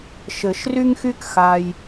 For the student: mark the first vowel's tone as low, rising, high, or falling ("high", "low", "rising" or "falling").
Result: low